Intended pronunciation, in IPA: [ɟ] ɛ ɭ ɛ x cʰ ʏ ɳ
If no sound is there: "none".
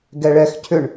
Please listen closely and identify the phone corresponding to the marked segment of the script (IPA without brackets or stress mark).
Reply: ɡ